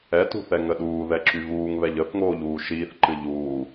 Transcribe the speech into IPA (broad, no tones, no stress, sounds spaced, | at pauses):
ɛ t ṳ θ ɛ ŋ ə ɗ uː ð ɛ ǁ y v uː ŋ β ɛ ʎ ə θ ŋ oː ʎ uː ʃ iː θ ǃ ɨ ʎ uː